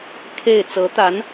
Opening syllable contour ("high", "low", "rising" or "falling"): falling